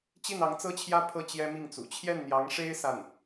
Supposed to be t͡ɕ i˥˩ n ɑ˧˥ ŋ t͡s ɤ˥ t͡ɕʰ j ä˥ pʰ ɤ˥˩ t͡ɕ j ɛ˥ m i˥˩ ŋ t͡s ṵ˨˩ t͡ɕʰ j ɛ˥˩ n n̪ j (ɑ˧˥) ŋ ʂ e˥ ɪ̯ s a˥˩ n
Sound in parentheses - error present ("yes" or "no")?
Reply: no